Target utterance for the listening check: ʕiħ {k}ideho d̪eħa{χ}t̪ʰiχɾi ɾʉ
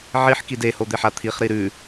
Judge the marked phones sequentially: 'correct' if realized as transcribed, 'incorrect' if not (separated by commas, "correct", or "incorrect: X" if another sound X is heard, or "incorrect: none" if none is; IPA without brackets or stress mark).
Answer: correct, incorrect: none